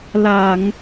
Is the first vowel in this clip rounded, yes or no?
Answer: no